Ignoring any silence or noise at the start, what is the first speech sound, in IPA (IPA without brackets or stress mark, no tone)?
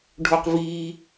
ɖʱ